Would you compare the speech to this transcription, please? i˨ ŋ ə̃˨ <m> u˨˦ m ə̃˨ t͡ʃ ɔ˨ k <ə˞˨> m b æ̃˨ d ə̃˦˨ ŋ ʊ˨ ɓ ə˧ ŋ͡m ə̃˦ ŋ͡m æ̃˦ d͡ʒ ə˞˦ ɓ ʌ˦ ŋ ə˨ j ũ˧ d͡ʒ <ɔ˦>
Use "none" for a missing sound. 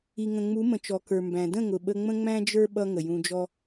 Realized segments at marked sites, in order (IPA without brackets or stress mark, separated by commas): ŋ͡m, ə˞˨, ɔ˦